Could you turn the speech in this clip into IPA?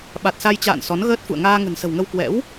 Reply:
ɓa˨˩t̚sa˧jt͡ɕa̰ː˧˨n sɔ˨˦nɣəː˦˥t̚fṵ˧˨ə̯ ŋaː˧ŋə̤˨˩nsə̤˨˩wŋə˧w kwɛ̰˧˥w

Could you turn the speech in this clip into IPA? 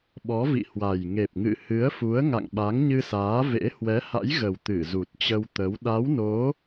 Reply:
ɓɔ˨˦vḭ˧˨hwa˨˩j ŋe˨˩p̚ŋɨ̰˧˨hɨ˨˦ə̯ fu˨˦ə̯ŋa̰˧˨ŋ ɓa˨˦ŋɲɨ˧saː˨˦vḛ˧˥ hwɛ˨˦ha̰˧˥jɣə˨˩w t̪ɨ˧˩ zu˨˩t̚ t͡ɕə˧w t̪ə˨˦w ɗa˨˦wno˨˦

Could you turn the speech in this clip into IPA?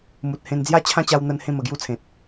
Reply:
mu˨t̚hẽ˧n d͡zja˦t͡ɕʰã˦t͡ɕa˧wn̪ə˧n hẽ˥˧mə˨˩ɡju˥˧t͡sʰẽ˨t̚

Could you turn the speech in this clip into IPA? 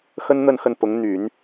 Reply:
xə˥nn̪ə˥˧nxə˥˩npʊ˧˥ŋ n̪y˨˩˦n

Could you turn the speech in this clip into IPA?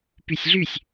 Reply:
pysʲɮysʲ

